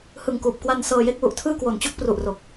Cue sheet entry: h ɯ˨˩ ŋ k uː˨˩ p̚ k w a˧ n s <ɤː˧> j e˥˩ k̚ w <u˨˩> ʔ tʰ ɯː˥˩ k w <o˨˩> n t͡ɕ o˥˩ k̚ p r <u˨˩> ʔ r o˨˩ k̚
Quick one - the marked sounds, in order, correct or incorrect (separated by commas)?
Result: correct, correct, correct, correct